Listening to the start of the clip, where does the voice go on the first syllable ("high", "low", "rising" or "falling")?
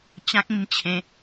high